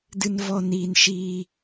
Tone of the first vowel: high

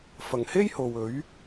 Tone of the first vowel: low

